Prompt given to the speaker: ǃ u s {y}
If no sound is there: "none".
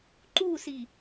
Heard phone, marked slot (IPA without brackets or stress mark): i